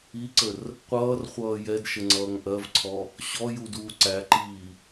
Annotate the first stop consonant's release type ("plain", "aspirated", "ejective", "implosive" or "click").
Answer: click